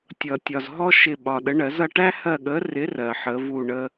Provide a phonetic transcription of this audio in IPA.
tʲ ʌ˨ tʲ ɒ˨ z ɦ ɔ˥ ʃ ɪ˦˨ ɓ ɒ˨ ɗ ə˨˥ ɳ ɜ˨˩˦ z ʌ˦˨ ʈ æ˥ h ɜ˦˨ ɠ ə˨˥ r ɪ˨˥ r ɜ˨ ħ ə˨˥ v u˦˨ ɳ ə˥

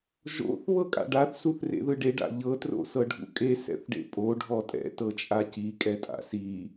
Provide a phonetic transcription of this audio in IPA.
ʒ o̰ θ β ɤ kʼ a̰ ɖ a θ s u θ r ḛ ð ɯ ɖ e ɖ a̰ ʎ ɤ t r o̰ s ɤ ɖʱ ṵ kʼ e s ɛ̰ θ ɖ ḛ pʼ o ɖʱ ɔ tʼ ɛ̰ t ɤ t͡ʃʼ a c i kʼ ɛ tʼ a̰ s i

